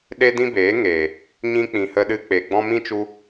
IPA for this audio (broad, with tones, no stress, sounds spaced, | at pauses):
ɗ e˦ d ĩ˦ b eː˨˦ ŋ eː˨ | ɲ ĩ˧ k͡p ĩ˨ h ə˧ ɗ ɨ˧ k͡p e˨ ɡ͡b ɔ̃˧ m ĩ˦ t͡ʃ u˧